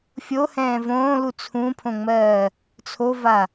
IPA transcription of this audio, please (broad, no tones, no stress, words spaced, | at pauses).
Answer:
fʲohɛ̃ː võːlu t͡sʰũpʰõŋ͡mɜː | t͡sʰova